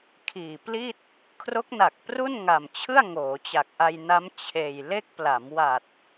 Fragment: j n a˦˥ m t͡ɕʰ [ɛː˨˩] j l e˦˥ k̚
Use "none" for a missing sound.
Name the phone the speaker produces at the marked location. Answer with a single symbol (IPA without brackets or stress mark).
eː˨˩